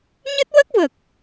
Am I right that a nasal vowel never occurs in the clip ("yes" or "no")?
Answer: yes